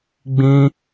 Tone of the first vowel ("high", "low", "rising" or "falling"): high